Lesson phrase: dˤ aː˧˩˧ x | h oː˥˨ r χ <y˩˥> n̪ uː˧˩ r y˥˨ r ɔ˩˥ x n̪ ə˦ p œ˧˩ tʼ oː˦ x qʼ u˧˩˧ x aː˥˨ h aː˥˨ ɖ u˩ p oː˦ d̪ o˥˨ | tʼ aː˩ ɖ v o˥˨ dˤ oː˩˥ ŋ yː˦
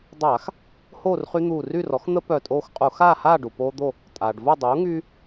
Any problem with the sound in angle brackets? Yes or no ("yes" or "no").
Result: yes